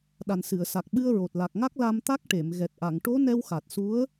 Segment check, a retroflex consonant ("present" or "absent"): present